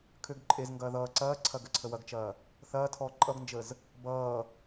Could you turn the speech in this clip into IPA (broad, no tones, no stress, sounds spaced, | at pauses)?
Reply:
kʰ ø ɡ ǃʼ e z ŋ ɡ ɐː ð ʌː ǀ ɐː ǀʰ ɐ ɡ ə ǀʰ ə w ɐ ɡ t͡ʃ ɐː | θ ɐː tʰ ɔː ǃʼ ʌ ɡ n d͡ʒ ə z | b ʌː